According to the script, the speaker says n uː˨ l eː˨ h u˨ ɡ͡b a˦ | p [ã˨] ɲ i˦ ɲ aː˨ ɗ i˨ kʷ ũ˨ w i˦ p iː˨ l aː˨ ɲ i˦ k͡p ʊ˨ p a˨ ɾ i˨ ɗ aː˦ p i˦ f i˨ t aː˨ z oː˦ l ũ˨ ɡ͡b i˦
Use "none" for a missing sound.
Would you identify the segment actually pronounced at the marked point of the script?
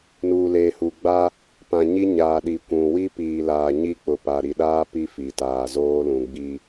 ã˨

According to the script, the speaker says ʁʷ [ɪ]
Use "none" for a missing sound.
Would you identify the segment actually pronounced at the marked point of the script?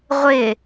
ɪ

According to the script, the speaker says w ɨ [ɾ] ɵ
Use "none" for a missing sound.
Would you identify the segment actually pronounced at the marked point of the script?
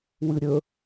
ɾʲ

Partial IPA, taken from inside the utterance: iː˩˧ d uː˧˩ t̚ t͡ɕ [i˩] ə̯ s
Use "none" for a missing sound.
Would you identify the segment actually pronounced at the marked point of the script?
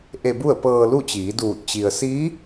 i˩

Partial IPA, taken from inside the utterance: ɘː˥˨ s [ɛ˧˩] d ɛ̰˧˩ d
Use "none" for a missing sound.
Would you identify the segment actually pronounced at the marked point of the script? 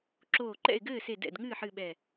e˧˩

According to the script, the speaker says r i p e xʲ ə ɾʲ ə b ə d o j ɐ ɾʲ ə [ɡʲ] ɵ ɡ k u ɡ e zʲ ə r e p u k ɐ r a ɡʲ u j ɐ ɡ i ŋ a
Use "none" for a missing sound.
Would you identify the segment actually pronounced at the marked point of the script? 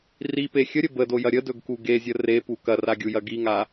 d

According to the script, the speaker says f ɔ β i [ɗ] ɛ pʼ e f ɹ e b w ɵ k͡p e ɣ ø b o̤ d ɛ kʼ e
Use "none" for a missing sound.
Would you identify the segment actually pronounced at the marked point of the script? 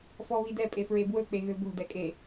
d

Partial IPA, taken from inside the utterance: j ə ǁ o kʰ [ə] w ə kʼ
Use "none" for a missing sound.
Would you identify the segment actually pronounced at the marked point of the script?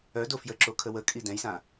ə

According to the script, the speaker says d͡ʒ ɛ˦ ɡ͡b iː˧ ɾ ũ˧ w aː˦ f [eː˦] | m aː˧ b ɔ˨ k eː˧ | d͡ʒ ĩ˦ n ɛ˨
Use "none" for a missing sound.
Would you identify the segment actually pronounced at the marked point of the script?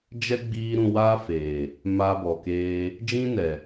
eː˨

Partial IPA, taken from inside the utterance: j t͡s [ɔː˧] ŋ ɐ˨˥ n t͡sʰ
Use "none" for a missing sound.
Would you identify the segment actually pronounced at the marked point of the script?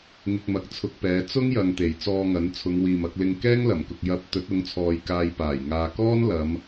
ɔː˧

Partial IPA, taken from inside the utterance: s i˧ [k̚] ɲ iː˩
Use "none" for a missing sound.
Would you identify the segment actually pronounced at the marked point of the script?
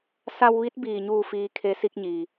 k̚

